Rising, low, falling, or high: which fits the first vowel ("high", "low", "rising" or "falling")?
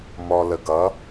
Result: low